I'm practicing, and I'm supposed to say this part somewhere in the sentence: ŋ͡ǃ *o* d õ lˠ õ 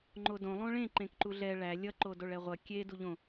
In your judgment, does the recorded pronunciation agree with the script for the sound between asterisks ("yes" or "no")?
yes